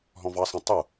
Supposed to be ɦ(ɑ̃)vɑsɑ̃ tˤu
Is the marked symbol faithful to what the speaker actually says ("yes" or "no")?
no